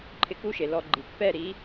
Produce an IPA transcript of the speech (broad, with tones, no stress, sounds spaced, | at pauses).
ǃʰ ɪ˧ k u˦ ʃ e˨ l ɔ˧ ɡ͡ǃ i˨ k p ɛ˦˨ ɾ i˨˦